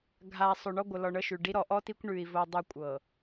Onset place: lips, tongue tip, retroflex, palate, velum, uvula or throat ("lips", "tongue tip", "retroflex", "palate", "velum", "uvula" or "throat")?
velum